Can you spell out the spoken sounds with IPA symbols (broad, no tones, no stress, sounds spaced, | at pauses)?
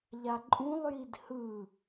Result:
ʎ a ǃʼ ũ lˠ j i d h ɯ